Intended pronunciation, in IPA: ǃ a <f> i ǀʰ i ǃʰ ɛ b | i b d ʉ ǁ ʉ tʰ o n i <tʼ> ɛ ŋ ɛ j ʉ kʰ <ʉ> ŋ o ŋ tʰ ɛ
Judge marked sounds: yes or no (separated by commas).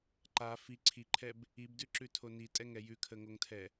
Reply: yes, yes, no